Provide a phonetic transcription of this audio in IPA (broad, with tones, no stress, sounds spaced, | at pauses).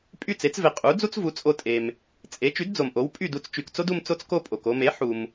pʼ y˥˩ t͡s e˩˥ t͡s v e˩ qʼ u˩˥ d͡z u˥ t͡s v u˩˥ t͡sʼ o˧ tʼ e˩ m | t͡sʼ e˩˥ t͡ʃ y˩˥ d d͡z o˩ m ʔ o˩˥ w pʼ y˥˩ d u˧ t͡s t͡ʃ y˩ k t͡s o˥ d u˧ m t͡s o˥ t͡s k o˥ pʼ o˩ k o˧ m e˩˥ ħ u˩ m